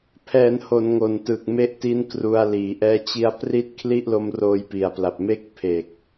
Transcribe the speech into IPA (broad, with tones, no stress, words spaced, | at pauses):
pʰɛː˩˦nho˩˦n ŋo˨˩ntɯ˨˩k̚me˦˥ʔti˦˥n kru˧a̯liː˩˦ʔɛː˥˩ t͡ɕi˦˥a̯pri˥˩t̚ kʰli˥˩ʔlo˦˥mroː˧j pi˨˩a̯pla˨˩p̚me˥˩k̚ pʰe˨˩k̚